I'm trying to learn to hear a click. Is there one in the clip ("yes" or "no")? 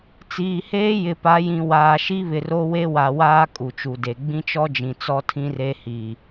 no